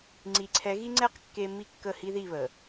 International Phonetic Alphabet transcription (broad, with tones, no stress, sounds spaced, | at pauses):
ŋ͡ǀ i˨ ǀʰ ɛ˨˦ ɣ i˦ ŋ͡ǀ ɛ˦ q kː e˦ m i˦˨ kː ə˦˨ h i˦ ð i˦˨ β ə˨